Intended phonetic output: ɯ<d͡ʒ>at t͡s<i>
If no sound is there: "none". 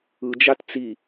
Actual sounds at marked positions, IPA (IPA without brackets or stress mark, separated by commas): d͡ʒ, i